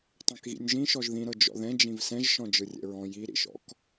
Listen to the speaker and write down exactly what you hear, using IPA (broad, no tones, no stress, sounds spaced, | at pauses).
tˤ ɛ̃ k ɣ ḭ nʲ ʒ ĩ ʃ ɔ ʒ ð ĩ ɾ ɤ d͡ʒ ɔ̰ ð ɛ̃ d͡ʒ ĩ v s ɛ̃ ʒ ʃ ɔ̃ d͡ʒ ɯ rʲ ɛ̰ ɹ ɔ̃ j i ɾ ḭ ʃ ɔ̰ k